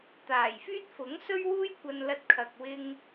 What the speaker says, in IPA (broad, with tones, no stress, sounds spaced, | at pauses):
t̪ aː˨˩ j f yː˥ t̚ f ʊ˨˥ ŋ s ɵ˥ ɥ w uː˥ j kʷ ɐ˧ n l ɐ˧ t̚ kʰ ɐ˨ k̚ w ɪ˧ ŋ